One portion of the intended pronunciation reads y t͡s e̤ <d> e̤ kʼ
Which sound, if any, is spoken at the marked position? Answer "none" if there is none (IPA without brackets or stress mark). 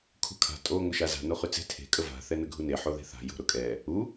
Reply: tʰ